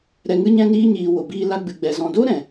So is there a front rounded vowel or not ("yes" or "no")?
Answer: no